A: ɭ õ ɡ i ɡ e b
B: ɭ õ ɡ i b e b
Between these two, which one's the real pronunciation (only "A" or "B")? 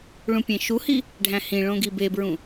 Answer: B